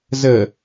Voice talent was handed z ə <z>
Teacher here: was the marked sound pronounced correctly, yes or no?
no